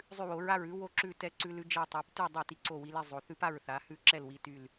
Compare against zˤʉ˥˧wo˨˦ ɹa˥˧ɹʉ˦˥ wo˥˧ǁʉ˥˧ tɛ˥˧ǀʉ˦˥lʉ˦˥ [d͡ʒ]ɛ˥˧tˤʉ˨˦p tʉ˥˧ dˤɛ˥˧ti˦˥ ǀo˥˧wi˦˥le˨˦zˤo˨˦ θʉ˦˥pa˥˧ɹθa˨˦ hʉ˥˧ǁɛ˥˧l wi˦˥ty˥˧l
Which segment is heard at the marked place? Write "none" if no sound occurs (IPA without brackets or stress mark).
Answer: d͡ʒ